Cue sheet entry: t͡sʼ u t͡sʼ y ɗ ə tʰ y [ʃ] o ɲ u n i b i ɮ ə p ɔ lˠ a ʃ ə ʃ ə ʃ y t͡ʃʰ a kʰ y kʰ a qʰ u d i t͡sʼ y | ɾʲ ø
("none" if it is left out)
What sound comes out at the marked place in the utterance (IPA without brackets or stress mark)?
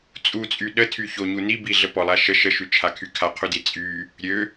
ç